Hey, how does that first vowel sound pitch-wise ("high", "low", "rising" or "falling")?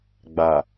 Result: low